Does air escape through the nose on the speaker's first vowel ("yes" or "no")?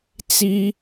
no